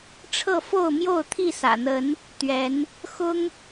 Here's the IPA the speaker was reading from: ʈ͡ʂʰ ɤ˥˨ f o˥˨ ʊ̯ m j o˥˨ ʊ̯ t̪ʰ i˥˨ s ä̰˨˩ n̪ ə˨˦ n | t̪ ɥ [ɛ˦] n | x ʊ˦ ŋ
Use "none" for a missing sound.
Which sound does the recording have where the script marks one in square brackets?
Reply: ɛ˨˦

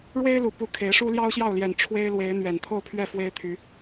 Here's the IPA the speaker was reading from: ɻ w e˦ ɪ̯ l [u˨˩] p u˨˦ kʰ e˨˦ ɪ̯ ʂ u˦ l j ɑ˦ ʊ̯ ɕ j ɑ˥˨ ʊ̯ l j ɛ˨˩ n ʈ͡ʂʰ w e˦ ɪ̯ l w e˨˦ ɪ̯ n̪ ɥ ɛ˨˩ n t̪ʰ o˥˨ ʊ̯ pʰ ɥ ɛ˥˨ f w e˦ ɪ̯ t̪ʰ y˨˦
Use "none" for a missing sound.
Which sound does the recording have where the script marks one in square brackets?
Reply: u˨˩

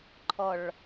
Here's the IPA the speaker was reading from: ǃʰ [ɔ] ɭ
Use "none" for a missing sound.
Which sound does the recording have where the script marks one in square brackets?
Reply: ɔ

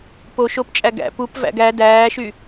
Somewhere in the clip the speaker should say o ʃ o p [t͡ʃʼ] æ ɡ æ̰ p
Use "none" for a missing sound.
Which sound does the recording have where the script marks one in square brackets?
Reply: t͡ʃʼ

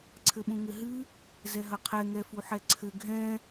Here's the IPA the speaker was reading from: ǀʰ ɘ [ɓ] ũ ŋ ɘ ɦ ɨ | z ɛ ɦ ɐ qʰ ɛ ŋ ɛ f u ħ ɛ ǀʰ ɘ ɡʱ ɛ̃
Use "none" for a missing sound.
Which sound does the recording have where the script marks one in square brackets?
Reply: ɓ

